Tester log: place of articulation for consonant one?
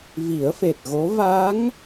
labial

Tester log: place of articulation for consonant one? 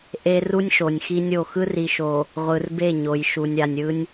glottal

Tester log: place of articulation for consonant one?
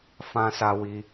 labial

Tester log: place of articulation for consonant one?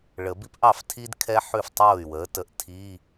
retroflex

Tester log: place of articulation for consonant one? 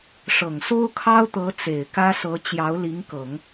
retroflex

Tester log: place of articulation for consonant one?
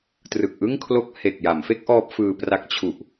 alveolar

